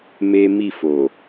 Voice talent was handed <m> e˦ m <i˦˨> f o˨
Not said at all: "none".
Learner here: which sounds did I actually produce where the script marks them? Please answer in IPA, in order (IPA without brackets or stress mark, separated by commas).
m, i˦˨